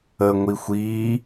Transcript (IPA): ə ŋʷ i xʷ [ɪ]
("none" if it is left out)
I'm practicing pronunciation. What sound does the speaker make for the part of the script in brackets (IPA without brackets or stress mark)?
i